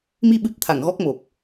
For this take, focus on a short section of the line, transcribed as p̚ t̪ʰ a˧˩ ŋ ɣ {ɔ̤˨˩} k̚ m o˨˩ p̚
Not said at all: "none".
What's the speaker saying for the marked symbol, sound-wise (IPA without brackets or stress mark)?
ɔ˦˥